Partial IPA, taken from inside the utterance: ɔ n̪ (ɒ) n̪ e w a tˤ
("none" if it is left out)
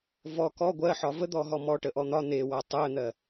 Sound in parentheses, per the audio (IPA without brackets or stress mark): ɒ